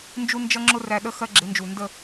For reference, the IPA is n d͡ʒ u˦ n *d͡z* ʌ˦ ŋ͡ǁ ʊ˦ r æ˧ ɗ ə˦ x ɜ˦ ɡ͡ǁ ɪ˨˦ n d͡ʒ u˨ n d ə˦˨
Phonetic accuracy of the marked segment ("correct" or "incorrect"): incorrect